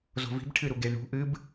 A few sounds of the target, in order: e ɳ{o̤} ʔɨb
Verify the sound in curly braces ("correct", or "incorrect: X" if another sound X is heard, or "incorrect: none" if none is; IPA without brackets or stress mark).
incorrect: ṳ